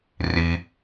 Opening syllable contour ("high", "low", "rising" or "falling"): low